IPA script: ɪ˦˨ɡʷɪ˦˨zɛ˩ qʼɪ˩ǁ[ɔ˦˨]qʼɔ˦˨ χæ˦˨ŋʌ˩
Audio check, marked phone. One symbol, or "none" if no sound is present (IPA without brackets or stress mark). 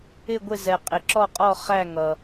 ɔ˦˨